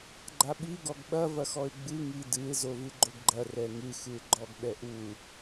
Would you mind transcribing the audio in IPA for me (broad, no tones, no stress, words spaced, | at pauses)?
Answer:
ɡ͡ǃaɓi ɡɔɡɓɐ vɐxɔɪ̯ɡ͡bɨ ŋidɨɪ̯ zovɨɡ͡ǃoɡɡ͡ǃɐ rɛŋɨ xɨɪ̯ɡ͡ǃɔɡɓɛʔu